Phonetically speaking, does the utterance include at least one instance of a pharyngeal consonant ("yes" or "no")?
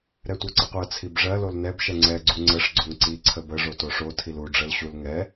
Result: no